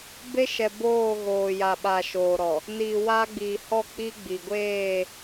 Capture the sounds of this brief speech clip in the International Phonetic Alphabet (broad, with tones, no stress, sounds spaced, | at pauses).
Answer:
b e˦ ʃ ɛ˨ b oː˦˨ ɣ oː˨ j a˨ ɓ a˨ ʃ oː˨ ɾ ɔ˨ | n iː˨ w aː˦ ɡ͡b iː˨ h ɔ˦˨ k͡p i˦ ɡ͡b i˨ ɡʷ eː˦˨